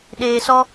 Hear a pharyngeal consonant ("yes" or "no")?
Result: no